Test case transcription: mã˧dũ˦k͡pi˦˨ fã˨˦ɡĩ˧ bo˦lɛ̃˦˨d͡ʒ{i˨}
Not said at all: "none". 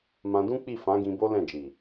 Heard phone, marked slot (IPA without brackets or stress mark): i˨